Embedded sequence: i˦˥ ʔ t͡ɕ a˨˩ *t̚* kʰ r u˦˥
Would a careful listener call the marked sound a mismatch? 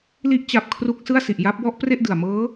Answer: yes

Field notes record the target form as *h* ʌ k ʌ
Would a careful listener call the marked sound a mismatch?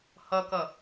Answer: no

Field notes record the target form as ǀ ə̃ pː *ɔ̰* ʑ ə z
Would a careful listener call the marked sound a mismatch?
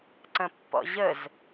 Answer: no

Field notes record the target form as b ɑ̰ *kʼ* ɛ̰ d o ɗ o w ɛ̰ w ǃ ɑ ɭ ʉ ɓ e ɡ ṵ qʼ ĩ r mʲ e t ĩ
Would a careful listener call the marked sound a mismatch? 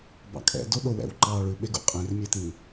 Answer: no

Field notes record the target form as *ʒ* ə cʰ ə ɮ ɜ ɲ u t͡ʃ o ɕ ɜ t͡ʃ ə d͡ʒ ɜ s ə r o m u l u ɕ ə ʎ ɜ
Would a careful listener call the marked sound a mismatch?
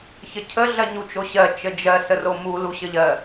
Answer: yes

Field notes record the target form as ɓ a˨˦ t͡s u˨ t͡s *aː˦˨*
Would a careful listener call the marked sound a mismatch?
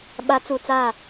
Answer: no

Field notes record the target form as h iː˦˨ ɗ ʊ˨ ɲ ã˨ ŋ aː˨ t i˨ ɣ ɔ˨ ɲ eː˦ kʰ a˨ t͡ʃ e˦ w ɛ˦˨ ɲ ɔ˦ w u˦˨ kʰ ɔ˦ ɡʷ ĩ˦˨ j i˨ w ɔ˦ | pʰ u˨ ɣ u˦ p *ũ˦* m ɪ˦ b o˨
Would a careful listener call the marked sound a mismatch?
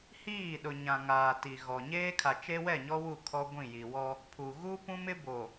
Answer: no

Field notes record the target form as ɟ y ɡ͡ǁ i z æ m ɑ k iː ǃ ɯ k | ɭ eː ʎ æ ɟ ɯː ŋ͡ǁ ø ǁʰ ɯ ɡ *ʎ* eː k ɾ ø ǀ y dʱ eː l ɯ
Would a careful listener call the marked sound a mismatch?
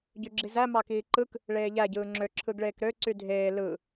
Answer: yes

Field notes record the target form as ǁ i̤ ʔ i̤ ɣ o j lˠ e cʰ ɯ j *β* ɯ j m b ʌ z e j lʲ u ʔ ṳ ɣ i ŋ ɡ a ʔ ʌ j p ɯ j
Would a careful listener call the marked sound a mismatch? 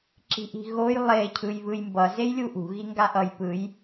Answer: no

